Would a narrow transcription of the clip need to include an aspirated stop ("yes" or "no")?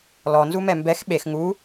no